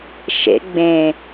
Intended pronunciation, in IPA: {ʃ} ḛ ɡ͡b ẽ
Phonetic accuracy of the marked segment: correct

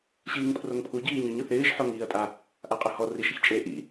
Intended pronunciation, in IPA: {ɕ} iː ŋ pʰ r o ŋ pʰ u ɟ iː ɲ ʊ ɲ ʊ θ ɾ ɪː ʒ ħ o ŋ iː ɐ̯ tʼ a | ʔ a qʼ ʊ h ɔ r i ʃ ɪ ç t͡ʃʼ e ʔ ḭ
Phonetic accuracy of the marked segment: correct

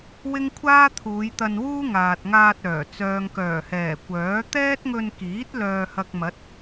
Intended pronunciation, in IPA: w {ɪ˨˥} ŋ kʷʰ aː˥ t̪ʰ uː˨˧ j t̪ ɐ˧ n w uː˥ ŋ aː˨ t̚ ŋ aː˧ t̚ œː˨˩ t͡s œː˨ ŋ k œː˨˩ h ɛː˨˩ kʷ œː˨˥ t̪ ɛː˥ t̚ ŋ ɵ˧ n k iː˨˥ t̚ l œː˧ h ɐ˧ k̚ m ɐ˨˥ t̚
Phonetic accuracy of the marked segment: incorrect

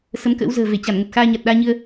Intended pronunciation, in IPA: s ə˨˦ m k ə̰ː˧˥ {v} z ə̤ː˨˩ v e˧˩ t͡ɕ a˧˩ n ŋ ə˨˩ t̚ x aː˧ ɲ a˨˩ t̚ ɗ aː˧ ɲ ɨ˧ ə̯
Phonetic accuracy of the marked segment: incorrect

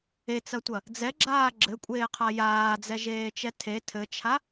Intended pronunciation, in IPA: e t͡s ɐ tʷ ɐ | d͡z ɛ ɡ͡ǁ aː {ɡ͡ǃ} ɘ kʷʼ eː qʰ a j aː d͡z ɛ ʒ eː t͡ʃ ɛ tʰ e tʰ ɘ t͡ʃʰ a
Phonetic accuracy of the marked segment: incorrect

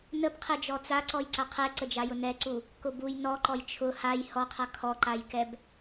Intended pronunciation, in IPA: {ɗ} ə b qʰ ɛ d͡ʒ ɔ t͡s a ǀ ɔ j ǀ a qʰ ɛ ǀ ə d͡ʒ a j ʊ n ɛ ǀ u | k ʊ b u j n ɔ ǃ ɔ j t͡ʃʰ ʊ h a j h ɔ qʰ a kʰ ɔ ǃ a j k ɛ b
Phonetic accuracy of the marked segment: incorrect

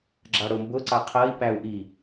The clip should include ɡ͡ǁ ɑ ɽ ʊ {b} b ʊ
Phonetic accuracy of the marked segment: incorrect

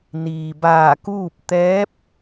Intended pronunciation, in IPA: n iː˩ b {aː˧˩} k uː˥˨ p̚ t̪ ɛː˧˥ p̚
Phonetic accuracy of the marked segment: correct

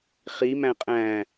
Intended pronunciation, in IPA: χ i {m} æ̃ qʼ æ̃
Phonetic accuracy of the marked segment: correct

